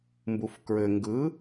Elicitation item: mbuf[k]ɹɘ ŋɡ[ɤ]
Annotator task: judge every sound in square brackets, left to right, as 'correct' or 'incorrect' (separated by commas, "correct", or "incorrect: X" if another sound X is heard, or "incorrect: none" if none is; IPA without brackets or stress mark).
correct, incorrect: ɯ